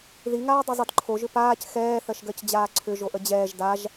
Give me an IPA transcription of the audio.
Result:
ð i ŋ aː dˤ ɯ zˤ ɯ d ǃʰ o ʒ ʏ p aː c x ɛː θ ɜ ʃ ɡ ɜ c d͡ʑ aː ǀʰ ʏ ʒ o ʔ ə d͡ʑ ɛː ʒ d a ʒ

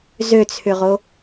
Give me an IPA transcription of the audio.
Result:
z ø t͡sʰ ʏ ʁ o

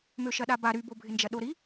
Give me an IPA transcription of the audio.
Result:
m ø ʃ ɐ ɗ a b a ɾ y b o bʱ ɪ n d͡ʒ ɐ ɗ o ɾ i

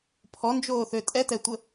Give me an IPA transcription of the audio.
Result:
pʰ ɔ n d͡ʒ oː θ ø tʼ ɛ t ɛ tʷ ə

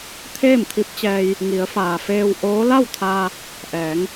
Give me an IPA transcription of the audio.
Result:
t̪ʰ eː˥˨ m t̪ʰ i˧˥ p̚ t͡ɕ ɛː˧ j | ŋ i˩˧ ə̯ f aː˩ f eː˧ w ʔ oː˧˥ l a˥˨ w t̪ʰ aː˧ | ʔ ɛː˩˧ ŋ

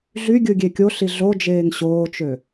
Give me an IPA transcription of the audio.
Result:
ɮ y ɡʲ ɯ ɡʲ e kʲ o ɬ i ɮ o d͡ʒ eː ŋ ɕ oː t͡ʃ ø

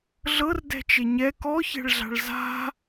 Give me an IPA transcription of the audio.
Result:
ɮ ɤ r d ɛ̤ t͡ʃ e ɲ ɛ k ɔ ç ɛ̤ ɭ ɮ a̤ ɭ z a̤

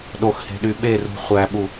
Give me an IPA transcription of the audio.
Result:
ɗ o x h e̤ ɗ y ɓ e r ṳ χʷ æ ɓ u

